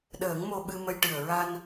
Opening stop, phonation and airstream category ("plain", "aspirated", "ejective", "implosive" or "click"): implosive